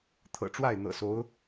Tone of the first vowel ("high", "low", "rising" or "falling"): low